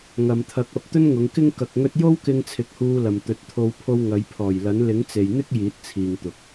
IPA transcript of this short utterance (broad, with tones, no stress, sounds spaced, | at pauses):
ŋ ɐ˨ m t̪ʰ ɐ˨˥ k̚ ɐ˨ p̚ t̪ ɵ˥ n ŋ ʊ˨˧ ŋ k ɪ˥ ŋ k ɐ˨ k̚ ŋ ɵ˧ t̚ j o˥ w k ɪ˧ ŋ t͡sʰ ɪ˨˥ k̚ h uː˧ l ɐ˨ m t̪ ɵ˨˥ t̚ t̪ʰ o˧ w pʰ o˧ w ŋ ɐ˨˧ j pʰ ɔː˨˩ j l ɐ˨˥ n l ɪ˨˥ ŋ t͡s e˨ j n̪ ɪ˥ k̚ j iː˨˥ t̚ t͡sʰ iː˨ ŋ t̪ ʊ˨ k̚